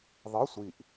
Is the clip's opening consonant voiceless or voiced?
voiced